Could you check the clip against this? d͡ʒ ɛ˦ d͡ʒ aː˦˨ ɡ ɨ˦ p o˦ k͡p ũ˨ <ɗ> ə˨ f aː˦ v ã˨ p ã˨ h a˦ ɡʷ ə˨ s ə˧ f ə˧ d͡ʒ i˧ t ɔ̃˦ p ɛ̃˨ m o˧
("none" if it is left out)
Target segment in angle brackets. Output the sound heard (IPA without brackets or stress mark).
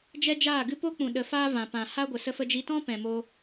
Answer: ɗ